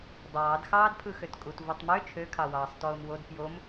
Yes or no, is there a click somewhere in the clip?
no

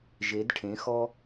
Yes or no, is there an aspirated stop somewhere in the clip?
yes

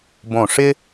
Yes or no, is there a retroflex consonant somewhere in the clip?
yes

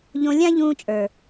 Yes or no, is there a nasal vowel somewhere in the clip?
yes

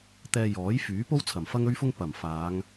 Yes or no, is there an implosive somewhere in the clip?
no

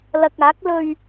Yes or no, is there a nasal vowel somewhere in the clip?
no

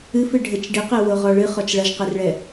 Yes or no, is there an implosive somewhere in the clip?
no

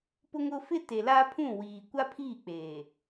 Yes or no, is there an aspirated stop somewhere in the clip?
yes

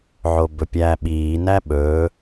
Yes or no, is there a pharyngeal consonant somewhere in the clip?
yes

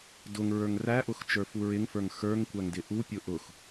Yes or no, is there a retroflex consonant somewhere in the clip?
no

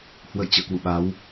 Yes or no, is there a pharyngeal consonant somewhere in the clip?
no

